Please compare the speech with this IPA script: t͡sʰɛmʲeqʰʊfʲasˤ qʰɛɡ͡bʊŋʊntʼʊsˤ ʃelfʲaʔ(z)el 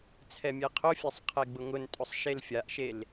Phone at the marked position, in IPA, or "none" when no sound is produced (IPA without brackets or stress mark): ʃ